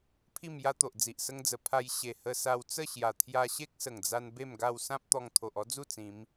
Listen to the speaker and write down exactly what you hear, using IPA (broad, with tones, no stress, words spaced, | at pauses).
pʰi˥˧mja˦t̪o˨ʔ d͡zi˨ʔsə˦ŋd͡zə˧ pʰa˧jɕe˨˩ hə˧ sa˧wt͡sə˥˧ɕja˨˩ t̪ʰja˧ɕe˦k̚sə˨˩ŋd͡za˧n be˥˧mɡa˥˧w sã˦p̚ t̪ɔ˧ŋt̪ʰo˨ʔɔ˦d͡zu˥˧ t͡sĩ˨˦m